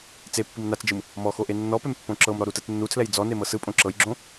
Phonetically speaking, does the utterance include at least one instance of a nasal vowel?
yes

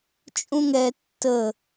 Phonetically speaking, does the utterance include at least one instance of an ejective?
yes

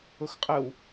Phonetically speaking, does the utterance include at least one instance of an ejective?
yes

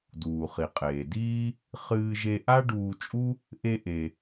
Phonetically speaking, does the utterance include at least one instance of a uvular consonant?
yes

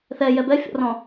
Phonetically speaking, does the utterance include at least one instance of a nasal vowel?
yes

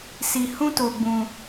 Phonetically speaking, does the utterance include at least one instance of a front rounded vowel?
no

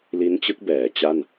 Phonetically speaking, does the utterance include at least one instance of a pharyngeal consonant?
no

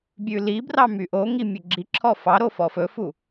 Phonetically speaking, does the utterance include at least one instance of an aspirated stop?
yes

